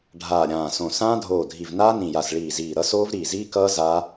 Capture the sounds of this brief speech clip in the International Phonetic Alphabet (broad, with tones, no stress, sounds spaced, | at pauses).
ɖʱ aː˧˩ ɾʲ ãː˧˩ s õ˧˩ s ãː˦˥ dʱ oː˧˩ dʱ i˧˩ v n aː˦˥ n ĩ˧˩ j a˧˩ s ɭ iː˧˩ z iː˧˩ ɾ ʌ˦˥ s oː˦˥ v ɾ iː˧˩ z iː˦˥ k ʌː˦˥ z aː˦˥